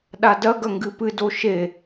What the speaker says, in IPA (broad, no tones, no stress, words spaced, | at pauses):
ɗadɐɡɐ ŋɡɨpɨdo ʃe